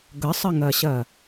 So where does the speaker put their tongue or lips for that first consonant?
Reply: velum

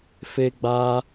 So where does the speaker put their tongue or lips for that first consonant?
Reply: lips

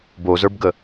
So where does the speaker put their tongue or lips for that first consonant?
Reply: lips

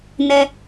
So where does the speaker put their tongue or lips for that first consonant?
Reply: tongue tip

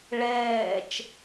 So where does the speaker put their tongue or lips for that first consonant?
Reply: retroflex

